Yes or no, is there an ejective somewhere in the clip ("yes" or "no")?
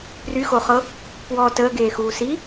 no